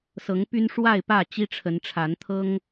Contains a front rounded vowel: yes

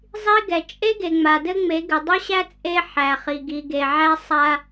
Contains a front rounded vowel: no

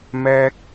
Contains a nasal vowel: no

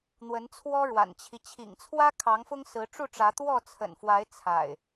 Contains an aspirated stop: yes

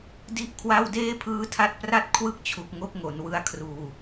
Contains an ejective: no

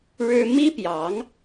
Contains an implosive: no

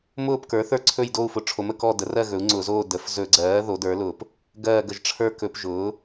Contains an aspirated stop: yes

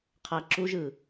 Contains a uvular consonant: yes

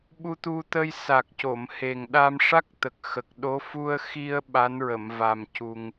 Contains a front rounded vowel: no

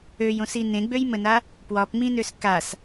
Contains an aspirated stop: no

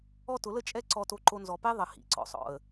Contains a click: yes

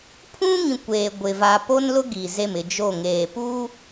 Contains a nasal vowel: yes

